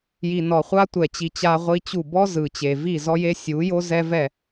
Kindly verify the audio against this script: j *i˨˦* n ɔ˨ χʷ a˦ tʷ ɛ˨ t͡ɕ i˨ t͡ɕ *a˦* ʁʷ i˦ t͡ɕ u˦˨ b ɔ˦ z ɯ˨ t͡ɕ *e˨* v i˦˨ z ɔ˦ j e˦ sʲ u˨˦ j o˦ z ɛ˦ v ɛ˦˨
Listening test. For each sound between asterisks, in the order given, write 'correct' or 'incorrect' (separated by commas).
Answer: incorrect, correct, correct